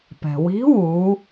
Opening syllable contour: low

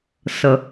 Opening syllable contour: low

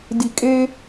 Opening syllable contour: low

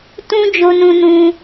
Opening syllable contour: high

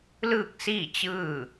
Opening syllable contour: falling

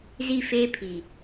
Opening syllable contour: falling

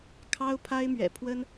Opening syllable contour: high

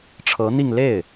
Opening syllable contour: rising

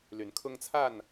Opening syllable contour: rising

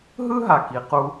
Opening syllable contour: high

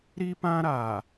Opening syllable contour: high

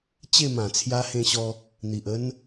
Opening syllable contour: falling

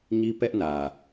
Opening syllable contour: high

